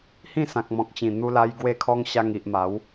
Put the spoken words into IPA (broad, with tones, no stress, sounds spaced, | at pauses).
h ĩ˥˧ s ã˨ k̚ m ɔ̃˨ k̚ t͡ɕ ĩ˨˩ n̪ u˧ l a˧ j ɡ w e˦ kʰ ɔ˦ ŋ ɕ a˧ ŋ i˨ ʔ m a˨˦ w